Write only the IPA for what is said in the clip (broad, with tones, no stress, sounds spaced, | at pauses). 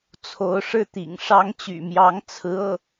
t͡sʰ o˧˥ ʊ̯ ʂ ɻ̩˥˩ t̪ ḭ˨˩ ŋ ʂ ɑ˥ ŋ t͡ɕ y̰˨˩ m j ɑ˧˥ ŋ t͡sʰ ɹ̩˧˥ ɤ˥˩